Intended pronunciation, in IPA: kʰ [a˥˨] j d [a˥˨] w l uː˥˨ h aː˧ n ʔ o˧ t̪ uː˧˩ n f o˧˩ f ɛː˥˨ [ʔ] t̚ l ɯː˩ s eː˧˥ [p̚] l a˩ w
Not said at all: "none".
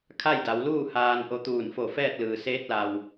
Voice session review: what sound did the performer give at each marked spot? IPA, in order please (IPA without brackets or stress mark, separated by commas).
a˥˨, a˩˧, none, t̚